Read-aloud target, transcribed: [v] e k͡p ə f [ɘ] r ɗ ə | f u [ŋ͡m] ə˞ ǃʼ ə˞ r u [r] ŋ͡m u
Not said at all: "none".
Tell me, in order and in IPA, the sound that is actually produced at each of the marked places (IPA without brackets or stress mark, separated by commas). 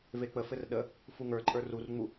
v, ɘ, ŋ, r